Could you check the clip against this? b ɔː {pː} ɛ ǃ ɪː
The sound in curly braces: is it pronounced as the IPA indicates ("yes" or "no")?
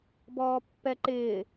yes